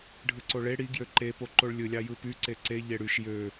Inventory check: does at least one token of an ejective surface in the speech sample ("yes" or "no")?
no